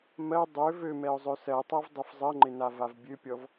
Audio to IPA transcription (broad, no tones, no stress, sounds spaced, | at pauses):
m ɜ dˤ ø v ø m ɛ ʊ̯ zˤ ø s ɜ tˤ ɜ v dˤ ɛ f zˤ ɜ ŋ͡ǃ ɪ n a v a v bʲ ø pʲ ɔ v